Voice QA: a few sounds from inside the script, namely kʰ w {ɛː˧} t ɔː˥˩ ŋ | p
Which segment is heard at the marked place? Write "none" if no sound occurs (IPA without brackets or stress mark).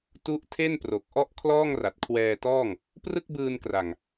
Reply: ɛː˧